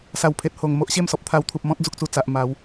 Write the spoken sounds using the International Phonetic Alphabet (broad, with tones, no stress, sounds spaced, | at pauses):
s a˨˩ w pʰ e˨ t̚ h o˨˩ ŋ m o˦ ʔ ɕ e˥˧ m s ɔ˨ p̚ t̪ʰ a˧ w t̪ʰ u˨ p̚ m ɔ̃˦ t̚ d͡z u˦ k̚ t͡s u˧ t͡s a˨ ʔ m a˨˦ w